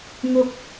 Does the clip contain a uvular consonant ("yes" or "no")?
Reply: no